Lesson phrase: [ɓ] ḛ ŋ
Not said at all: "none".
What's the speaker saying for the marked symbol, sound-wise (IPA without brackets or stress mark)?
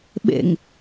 ɓ